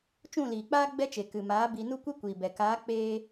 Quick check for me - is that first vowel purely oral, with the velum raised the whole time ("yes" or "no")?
no